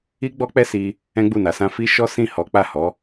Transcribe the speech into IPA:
i˦ ɡ͡b ɔ˦ k͡p ɛ˦ s i˧ | ɛ̃˦ ɡ͡b u˦˨ n a˨˦ s ã˦ f i˦ ʃ ɔ˦ s ĩ˦˨ h ɔ˨˦ k͡p a˦˨ h ɔ˨˦

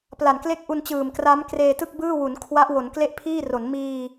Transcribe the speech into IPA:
p l a˨˩ n k l e˥˩ k̚ ʔ u˧ n t͡ɕ ɯː˨˩ m k r a˦˥ m k r eː˧ t ɯ˥˩ k̚ b ɯː˥˩ w u˩˦ n kʰ w a˦˥ ʔ w o˩˦ n k l e˥˩ ʔ pʰ iː˥˩ r o˩˦ n m iː˧

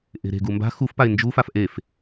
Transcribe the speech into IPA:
ʔ e̤ ɾ e̤ ɡ u m b a̤ x u f p a ɪ̯ n d͡ʒ u f a f ʔ e f

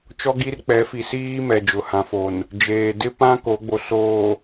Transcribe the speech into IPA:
t͡ʃ ɔ˦ ɡ i˦ r k͡p ɛ˨˦ f i˨ s iː˦ m ɛ˨ d͡ʒ ʊ˨ h ã˨ f o˨ n | d͡ʒ eː˨ d ɪ˦ p ã˦ k o˨˦ ɡ͡b o˨ s oː˨

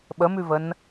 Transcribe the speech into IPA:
ɓ ə m ʉ v ə n

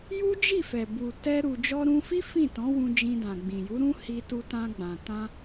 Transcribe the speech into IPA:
j u˦ d͡ʒ i˦˨ f ɛ˨ b u˨ t ɛ˧ ɾ u˨ d͡ʒ ɔ˧ ɾ ũ˧ f i˦ f ĩ˦˨ t ɔ̃˨˦ w ũ˧ d͡ʒ ĩ˧ d ã˨ ɡ͡b ĩ˨ j u˨˦ ɾ ũ˦ h i˧ t u˧ t ã˧ ɡ͡b ã˨ t ã˧

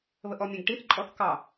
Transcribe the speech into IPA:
β ə ʔ ɔ mʲ ẽ ɡ ʈ i θ ǃʼ ɔ θ k ɑ

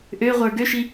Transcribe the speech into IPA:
ʔ ø ʁʷ ə˞ ɡ ø ʃ i

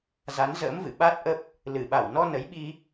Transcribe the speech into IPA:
z a˨˦ n z ə̰ː˧˥ m v ɨ̰˧˨ ɓ a˦˥ t̚ ʔ ə˦˥ p̚ | l ɨ˧˩ ɓ a˧˩ w n ɔ˧ n ə˨˦ j ɓ i˧

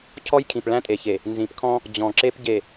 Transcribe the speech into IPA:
cʰ ɔ˦ j kʰ ĩ˨ p ɭ æ̃˦ tʼ e˨ ç e˨ | n z ĩ˨ p kʰ ɔ̃˦ | d͡ʑ ɔ̃˨ ǁ e˦ p ɟ e˨

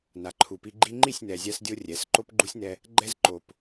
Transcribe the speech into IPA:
n a˨ ǃʰ u˨ p i˧ ɡ͡ǃ i˦ ŋ͡ǃ i˦˨ sʲ n ɛ˨ zʲ a˧ s dʲ o˧ rʲ ɛ˨˦ s ǃ o˦ p ɡ͡ǃ u˦ sʲ n ɛ˧ | ɡ͡ǃ ɛ˦ z ǃ o˨ p

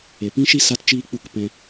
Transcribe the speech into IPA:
e˨ p ĩ˦ ʃ i˦ s a˦ t t͡ʃ iː˦ k͡p u˦˨ k p ɛ̃˧

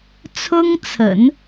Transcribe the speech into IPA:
t͡sʰ ʊ˥ ŋ t͡sʰ ə̰˨˩˦ n

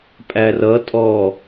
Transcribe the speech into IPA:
pʼ æ r ʌ tʼ ɔ

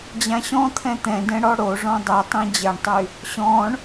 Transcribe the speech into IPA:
d͡ʑ ã ɕ ɔ̃ t̪ʰ ɛ̃ t̪ ɛ̃ d ɛ̃ ɽ ɔ ɽ o ʐ ɔ̃ dˤ e tˤ ĩ d͡ʑ ɛ ɳ tˤ y | ɕ ɔ̃ ɳ

